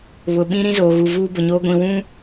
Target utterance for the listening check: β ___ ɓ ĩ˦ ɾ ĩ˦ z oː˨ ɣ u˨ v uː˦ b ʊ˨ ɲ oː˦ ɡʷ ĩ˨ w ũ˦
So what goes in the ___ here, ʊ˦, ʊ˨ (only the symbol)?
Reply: ʊ˨